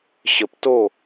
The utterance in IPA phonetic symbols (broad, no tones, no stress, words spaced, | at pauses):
ɕəp to